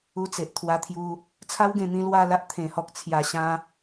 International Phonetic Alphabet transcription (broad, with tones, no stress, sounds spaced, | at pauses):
u˧ t͡s e˨ ʔ t̪ʰ w a˧ t̪ʰ j u˧ | t͡sʰ a˦ w ɡ ẽ˧ n̪ ĩ˧ l w a˥˧ l a˦ ʔ t̪ʰ ẽ˨˩ h ɔ˨ k̚ t͡sʰ j a˨˩ ɕ ã˧